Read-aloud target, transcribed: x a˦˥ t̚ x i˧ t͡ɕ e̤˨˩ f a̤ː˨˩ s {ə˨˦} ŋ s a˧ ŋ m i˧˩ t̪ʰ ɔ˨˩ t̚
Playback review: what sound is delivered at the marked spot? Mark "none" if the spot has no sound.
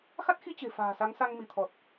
a˨˦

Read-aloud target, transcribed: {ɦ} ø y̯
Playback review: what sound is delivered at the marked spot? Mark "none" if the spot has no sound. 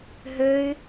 ɦ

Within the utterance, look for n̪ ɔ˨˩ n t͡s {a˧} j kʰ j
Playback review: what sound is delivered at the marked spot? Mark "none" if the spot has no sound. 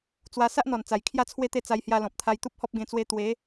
a˨˩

